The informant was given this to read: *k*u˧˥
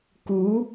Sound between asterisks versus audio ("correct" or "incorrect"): correct